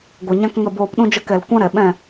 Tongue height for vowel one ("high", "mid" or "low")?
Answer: mid